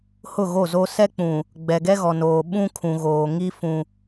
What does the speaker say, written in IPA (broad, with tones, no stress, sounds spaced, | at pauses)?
h ʊ˦˨ ɣ o˦˨ z o˦ s ɛ˦ k͡p ũ˨ | ɡ͡b ɛ˨ ɡ ɛ˦ ɣ ɔ˨ n oː˨ ɓ ũ˦ kʰ ũ˨ ɣ oː˨ ŋ i˦ f ũ˦